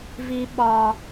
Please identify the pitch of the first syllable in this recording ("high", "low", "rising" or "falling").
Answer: high